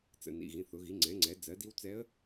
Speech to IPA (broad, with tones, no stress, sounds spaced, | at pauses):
t͡s ə̰˩˧˩ n ḭ˩˧˩ ɣ ĩ˩˧˩ θ ʊ˩˧ ɣ i˩˧ ŋ͡ǀ ɛ̃˩˧ ŋ͡ǀ ɛ˩˧ d͡z ɜ˩˧ d i˧˥ w t͡s ɛ˧˥ ə̯